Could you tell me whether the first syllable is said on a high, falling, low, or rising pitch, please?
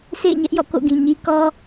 falling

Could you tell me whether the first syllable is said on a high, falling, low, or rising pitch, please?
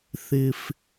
high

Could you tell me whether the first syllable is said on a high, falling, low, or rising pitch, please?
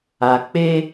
low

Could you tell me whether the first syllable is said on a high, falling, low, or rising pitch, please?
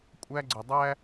high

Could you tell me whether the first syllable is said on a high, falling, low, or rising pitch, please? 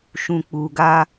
low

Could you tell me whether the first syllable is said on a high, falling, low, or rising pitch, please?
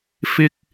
high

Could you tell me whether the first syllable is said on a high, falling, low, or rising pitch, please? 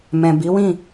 low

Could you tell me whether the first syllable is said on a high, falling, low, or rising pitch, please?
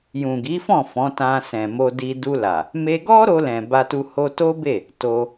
low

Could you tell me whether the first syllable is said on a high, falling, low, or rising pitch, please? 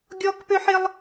high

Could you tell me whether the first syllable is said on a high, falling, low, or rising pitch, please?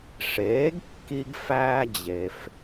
rising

